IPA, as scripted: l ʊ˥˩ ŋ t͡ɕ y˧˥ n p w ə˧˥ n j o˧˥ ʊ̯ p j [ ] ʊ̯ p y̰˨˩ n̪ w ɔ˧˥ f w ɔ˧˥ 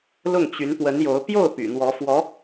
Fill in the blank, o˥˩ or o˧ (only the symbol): o˥˩